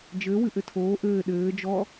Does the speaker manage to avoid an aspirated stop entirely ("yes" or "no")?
no